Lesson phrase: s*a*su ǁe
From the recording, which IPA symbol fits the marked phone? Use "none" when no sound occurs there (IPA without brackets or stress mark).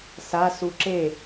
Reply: a